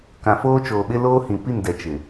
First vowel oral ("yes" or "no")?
no